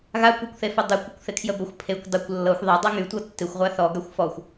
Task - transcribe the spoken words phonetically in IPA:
ɣ a kʷ e kʷ θ e f ə dˤ ɪ kʷ ə kʷ θ ɪ kʰ j ə b ə xʷ pʰ e kʷ dˤ ɪ kʷ lː ɤ xʷ ðˤ e dˤ ɤ ŋ y tʷ ɤ tː ɪ xʷ ʁʷ a θ ɔ ɡ a xʷ f ɔ xʷ

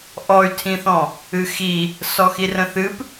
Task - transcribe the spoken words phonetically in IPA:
ʔ ɔ y̯ tʰ ĩ θ ɔ̃ | ɨ x i | s ɔ x i r ə̃ θ ɨ p

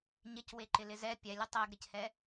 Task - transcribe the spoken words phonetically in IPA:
ɲ ɪ c w e ǃ ɪ l ɪ z ɛ pʲ ɛ lʲ ə tˤ ɛ ɡ ɾ ɪ c h ɛ

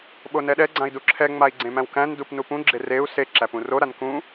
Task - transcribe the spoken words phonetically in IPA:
ɓ o n ɛ ɗ ɛ ɡ͡ǀ ã i̯ d u ǁʰ ɛ ŋ͡m a i̯ ɡ͡ǀ ẽ m æ̃ w k æ̃ n d u p n u p ũ ɡ͡ǁ e r e u̯ s e ǁ æ p ũ r o ɾ a n k ũ

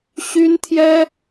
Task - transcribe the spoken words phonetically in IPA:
ɕ y˥ n t̪ʰ j ɛ˥

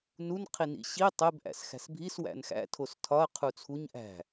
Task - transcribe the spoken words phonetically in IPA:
n u n qʰ i n ḭ ɕ i tˤ e b ʔ æ̰ s x æ̤ s bʱ i s w æ̰ n x æ̰ tʰ o s tʰ ɒ ɐ̯ qʰ u t͡sʰ u ɲ ʔ æ̤

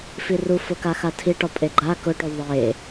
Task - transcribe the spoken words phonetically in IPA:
f i r u f ʊ k a x a tʰ i ʈ ɔ pʼ e ɡ͡ǃ a k ʊ ʈ o ðˤ e

